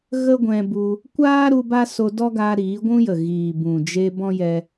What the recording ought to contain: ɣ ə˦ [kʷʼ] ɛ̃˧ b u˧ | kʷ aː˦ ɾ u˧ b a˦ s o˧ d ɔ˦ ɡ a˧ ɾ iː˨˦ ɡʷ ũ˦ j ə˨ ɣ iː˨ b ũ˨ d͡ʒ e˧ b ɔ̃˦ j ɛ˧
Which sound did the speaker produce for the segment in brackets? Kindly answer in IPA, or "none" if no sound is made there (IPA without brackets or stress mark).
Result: ɡʷ